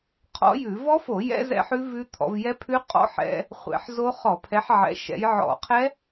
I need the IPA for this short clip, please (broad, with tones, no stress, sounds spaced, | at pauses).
qʰ ɔ̰˦˥ j ʉ˧˩˧ v ɔ˦˥ f o˧˩˧ j ɛ̰˦˥ z ɛ̰˦˥ ħ ʉ˦˥ v ʉ˦˥ t̪ʰ ɔ̰˨˦ v j ɛ˦˥ pʰ ʉ˦˥ qʼ ɔ̰˦˥ ħ ɛ̰˦˥ | χʷ ɛ̰˧˩˧ ħ z o˦˥ χ ɔ˧˩˧ pʰ ɛ˨˦ ħ ʕ ɛ̰˨˦ ʃ ɛ̰˨˦ j ʕ ɔ̰˧˩˧ qʰ ɛ˦˥